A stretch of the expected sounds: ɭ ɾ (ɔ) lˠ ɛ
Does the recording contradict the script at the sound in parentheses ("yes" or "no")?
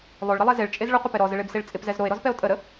yes